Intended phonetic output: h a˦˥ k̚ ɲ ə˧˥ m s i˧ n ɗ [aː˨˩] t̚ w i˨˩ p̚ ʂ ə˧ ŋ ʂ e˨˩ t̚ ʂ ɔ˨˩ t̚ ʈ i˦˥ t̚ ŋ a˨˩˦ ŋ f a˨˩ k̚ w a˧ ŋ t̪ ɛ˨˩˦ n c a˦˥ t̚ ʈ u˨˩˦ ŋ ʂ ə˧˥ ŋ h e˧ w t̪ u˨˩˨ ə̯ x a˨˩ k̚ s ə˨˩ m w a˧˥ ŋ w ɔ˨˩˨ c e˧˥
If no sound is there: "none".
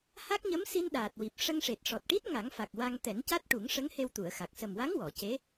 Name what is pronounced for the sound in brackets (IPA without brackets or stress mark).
aː˨˩